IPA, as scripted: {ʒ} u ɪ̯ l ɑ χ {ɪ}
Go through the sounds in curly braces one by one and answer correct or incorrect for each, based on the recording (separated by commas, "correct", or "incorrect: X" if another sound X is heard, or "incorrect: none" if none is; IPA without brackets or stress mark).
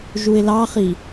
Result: correct, incorrect: i